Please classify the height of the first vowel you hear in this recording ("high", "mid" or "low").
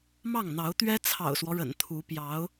low